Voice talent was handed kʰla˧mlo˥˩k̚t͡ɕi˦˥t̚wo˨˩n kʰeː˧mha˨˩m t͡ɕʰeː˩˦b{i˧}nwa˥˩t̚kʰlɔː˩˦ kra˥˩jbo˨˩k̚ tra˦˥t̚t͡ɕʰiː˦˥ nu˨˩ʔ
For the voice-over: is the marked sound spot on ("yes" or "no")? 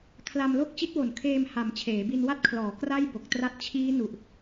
yes